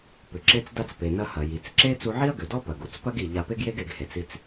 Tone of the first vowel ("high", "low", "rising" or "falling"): low